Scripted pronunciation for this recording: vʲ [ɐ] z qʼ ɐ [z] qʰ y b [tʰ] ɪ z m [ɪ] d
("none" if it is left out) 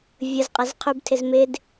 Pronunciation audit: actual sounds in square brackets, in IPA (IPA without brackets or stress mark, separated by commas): ə, z, tʰ, ɪ